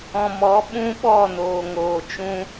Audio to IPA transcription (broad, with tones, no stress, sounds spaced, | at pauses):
ɔ̃˨ m ɔ˨˦ ɓ ũ˦ ɓ ɔ˦˨ n oː˨ ŋ oː˨ t͡ʃ ũ˦